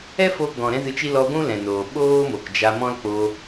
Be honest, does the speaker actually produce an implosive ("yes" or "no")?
yes